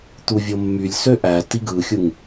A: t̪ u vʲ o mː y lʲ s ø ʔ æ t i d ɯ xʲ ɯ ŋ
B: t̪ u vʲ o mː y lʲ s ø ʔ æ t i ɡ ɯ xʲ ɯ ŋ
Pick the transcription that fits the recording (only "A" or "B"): B